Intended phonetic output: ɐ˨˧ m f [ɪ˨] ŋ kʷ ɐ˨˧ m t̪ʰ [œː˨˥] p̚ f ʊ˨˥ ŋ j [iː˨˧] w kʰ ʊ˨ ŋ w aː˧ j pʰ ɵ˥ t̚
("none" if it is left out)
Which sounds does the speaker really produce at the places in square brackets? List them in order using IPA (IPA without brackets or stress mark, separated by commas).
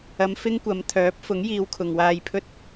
ɪ˥, œː˨˥, iː˨˧